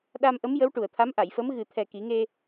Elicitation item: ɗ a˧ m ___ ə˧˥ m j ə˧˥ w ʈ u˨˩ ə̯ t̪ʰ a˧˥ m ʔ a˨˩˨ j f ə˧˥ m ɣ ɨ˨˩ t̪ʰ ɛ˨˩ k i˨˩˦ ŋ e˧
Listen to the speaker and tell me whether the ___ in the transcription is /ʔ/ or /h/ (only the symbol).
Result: ʔ